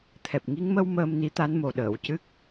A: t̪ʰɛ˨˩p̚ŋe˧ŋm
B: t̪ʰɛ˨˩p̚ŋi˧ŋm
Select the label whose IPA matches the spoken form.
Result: B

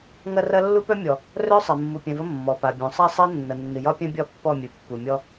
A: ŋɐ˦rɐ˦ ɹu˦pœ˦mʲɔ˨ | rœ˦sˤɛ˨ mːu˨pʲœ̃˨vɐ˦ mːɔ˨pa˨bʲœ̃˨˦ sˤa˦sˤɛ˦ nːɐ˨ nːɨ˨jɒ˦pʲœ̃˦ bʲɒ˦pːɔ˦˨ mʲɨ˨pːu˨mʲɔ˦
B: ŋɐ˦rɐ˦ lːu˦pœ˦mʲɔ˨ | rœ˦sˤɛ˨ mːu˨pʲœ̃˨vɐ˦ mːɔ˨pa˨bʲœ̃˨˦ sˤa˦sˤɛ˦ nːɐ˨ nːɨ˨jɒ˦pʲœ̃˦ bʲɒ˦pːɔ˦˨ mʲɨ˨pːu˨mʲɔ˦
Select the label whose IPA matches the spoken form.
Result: B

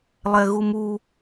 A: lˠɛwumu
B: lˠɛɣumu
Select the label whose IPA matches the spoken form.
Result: B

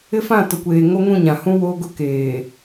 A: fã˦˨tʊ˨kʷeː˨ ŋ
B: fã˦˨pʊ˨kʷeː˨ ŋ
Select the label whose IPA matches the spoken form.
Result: A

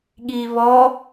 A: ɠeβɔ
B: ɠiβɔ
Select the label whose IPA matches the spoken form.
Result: B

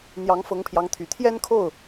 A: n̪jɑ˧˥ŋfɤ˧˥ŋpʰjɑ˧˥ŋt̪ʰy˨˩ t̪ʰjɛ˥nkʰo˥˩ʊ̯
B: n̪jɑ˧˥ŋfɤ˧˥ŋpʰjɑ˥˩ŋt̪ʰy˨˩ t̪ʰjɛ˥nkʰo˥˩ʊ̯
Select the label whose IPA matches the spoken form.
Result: A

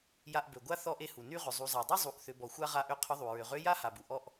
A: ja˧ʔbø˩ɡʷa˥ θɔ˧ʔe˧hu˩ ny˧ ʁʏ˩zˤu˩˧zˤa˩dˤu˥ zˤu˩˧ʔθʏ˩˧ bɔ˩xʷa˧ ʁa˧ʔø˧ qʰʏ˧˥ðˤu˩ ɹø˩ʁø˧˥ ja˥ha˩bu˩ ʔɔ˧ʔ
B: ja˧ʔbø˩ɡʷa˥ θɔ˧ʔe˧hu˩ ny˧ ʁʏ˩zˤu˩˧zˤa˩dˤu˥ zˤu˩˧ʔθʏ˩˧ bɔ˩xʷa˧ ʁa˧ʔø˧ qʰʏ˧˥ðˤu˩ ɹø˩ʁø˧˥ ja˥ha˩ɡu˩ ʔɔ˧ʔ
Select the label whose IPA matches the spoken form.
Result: A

